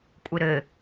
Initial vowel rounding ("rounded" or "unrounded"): unrounded